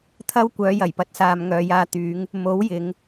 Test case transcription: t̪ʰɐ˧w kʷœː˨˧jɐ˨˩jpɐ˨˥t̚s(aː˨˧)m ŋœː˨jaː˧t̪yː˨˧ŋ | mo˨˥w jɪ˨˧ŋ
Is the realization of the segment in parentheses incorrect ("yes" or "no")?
yes